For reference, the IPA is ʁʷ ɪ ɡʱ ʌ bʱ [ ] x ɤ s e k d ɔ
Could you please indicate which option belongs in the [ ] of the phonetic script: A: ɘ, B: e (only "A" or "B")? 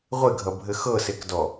A